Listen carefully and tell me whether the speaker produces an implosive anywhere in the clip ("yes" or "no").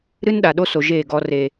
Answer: yes